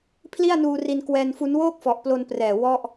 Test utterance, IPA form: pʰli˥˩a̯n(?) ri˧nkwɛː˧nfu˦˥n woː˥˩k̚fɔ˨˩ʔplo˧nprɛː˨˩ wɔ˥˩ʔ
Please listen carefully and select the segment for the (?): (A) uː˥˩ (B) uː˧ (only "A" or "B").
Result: B